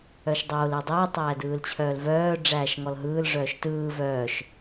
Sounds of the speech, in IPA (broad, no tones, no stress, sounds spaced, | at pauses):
œ ʃ dˤ oː l ɯ dˤ ɯː tˤ æː d ɯː l t͡ɕʰ œː l v œː ɖ͡ʐ æː ʃ ŋ ɔ l ɦ ɯː l ʐ œː ʃ t ɯː v œː ʃ